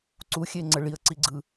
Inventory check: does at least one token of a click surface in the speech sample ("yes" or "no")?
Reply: yes